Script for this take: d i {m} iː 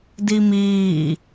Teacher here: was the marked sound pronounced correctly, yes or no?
yes